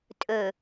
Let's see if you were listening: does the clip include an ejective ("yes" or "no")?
yes